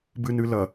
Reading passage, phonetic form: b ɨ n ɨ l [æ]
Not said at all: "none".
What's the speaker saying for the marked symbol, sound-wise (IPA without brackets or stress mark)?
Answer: ɐ